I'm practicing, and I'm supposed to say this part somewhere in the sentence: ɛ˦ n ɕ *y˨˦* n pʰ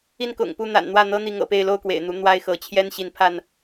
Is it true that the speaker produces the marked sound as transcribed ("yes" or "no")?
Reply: no